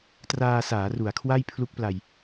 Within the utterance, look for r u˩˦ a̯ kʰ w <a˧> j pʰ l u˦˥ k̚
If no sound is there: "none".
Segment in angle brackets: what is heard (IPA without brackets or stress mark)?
a˥˩